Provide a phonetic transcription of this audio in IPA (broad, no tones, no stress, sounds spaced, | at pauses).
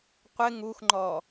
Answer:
qʷ ɪ ŋ u x ŋ͡ǃ ɔ